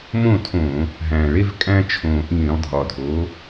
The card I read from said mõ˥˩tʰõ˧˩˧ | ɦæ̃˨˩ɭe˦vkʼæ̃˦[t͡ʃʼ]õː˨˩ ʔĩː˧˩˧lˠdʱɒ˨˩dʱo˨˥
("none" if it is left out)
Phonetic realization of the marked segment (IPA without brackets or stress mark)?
t͡ʃʰ